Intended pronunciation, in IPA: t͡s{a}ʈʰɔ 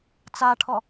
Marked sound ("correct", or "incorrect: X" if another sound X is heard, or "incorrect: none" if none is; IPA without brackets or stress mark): correct